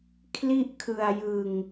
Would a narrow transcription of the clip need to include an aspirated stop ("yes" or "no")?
yes